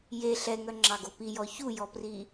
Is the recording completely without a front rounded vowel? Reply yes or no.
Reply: no